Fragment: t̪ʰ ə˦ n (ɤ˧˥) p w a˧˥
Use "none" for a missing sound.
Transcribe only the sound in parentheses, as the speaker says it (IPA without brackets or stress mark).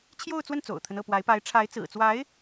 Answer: ɤ˥˩